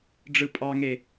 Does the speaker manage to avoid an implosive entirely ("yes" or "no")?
yes